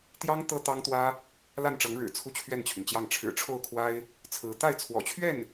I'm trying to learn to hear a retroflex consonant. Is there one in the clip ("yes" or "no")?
yes